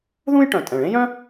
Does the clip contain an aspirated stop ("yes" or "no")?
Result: no